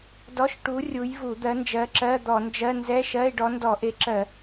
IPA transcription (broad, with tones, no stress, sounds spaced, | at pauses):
d ɔ˧˥˧ ʃ ʈ u˨˥ rʲ u˨˥ j v u˧˩˧ d̪ ɜ˨˥ n d͡ʒ ɜ˨˥ ǁ ɜ˧˥˧ d̪ ɔ˧˩˧ n d͡ʒ ɜ˧˥˧ n z ɛ˧˥˧ ʃ ɜ˧˥˧ e̯ ɖ ɔ˨˥ n d ɔ˧˩˧ ʔ e˨˥ ǁ ɜ˧˩˧